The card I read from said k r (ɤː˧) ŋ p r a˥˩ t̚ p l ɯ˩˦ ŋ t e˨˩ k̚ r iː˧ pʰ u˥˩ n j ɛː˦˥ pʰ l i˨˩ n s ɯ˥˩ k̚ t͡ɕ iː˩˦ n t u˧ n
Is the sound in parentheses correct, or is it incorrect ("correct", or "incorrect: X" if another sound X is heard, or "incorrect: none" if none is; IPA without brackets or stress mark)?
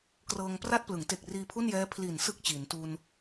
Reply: correct